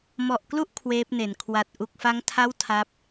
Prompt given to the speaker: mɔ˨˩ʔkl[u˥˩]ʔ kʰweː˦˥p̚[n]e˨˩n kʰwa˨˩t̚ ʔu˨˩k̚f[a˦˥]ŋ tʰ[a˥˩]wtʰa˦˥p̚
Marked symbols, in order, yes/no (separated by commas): yes, yes, yes, yes